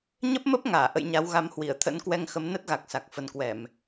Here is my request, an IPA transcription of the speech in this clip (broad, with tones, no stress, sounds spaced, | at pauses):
ɲ ə˦˥ p̚ m ə˦˥ p̚ ŋ aː˧˩ ʔ ə̰˧˨ j ɲ a˨˦ w ɣ a˨˦ m h w i˧˩ ə̯ t̪ʰ ə̰˧˥ n k w ɛ˧ ŋ x ə˨˦ m n ə˦˥ t̚ ɣ a˨˩ k̚ s a˨˩ k̚ f ə˨˩ n k w ɛ˧˩˨ m